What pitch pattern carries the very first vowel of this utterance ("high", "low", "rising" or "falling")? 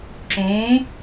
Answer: rising